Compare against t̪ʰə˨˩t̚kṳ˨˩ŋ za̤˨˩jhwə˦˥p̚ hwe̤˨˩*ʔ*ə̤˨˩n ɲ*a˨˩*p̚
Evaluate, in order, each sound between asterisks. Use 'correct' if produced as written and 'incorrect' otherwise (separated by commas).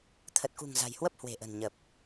correct, incorrect